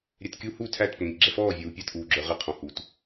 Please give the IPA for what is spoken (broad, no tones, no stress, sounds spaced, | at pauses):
ɾʲ ɛ t kʲ u h u tʰ æ t p ə ŋ ĩ k ɡ͡ǁ ɛ f ɔː vʲ uː pʲ ɑ t ʔ uː ɡ͡ǁ ə˞ ʁ ɪ qʰ ɔ̃ h u t